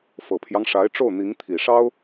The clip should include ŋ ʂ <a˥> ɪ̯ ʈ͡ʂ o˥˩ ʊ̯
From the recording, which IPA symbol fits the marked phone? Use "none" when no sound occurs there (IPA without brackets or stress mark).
a˧˥